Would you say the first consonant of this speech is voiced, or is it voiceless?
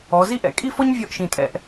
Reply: voiced